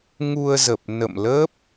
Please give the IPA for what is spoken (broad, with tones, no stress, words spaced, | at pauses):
ŋu˧ə̯zə˨˩p̚ nə̰˧˨mlə˦˥p̚